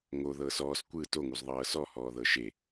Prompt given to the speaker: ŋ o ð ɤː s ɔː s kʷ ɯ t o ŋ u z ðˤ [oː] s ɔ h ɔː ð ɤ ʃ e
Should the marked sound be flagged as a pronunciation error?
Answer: yes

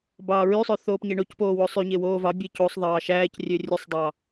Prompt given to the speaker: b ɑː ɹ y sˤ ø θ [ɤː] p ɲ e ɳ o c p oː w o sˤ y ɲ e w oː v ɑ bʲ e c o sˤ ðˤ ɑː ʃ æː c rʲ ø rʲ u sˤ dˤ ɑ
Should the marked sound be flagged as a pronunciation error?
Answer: yes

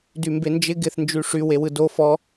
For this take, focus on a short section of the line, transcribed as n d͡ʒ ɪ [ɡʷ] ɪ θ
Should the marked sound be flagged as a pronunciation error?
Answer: yes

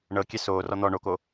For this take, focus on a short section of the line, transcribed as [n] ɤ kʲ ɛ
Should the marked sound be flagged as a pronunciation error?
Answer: yes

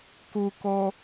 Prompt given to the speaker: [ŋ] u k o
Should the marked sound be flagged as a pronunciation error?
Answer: yes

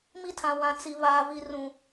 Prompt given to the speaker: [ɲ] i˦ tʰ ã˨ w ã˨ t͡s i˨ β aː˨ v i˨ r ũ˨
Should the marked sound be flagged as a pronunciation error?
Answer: yes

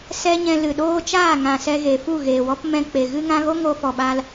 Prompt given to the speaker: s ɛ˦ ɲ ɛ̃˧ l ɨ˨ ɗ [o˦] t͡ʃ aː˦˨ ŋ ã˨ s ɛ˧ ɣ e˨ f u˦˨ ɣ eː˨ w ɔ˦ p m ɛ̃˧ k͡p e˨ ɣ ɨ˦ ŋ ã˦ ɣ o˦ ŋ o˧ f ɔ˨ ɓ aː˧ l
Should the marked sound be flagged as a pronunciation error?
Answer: yes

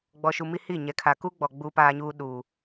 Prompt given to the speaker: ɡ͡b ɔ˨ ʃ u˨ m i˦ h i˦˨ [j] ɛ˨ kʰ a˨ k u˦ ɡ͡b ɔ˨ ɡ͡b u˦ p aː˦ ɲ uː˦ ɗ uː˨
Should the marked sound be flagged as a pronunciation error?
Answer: yes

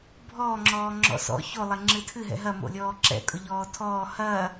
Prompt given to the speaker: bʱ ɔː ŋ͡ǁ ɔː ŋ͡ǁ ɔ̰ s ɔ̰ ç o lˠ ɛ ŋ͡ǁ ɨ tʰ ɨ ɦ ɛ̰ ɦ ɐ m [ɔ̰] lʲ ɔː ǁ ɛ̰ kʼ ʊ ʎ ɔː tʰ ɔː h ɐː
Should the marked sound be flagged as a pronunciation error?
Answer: yes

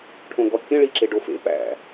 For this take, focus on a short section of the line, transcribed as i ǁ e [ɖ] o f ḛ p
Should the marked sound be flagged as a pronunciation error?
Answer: no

